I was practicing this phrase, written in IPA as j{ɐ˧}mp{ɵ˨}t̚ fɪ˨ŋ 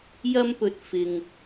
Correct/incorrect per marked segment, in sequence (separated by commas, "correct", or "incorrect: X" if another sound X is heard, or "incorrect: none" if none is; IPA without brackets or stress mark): correct, correct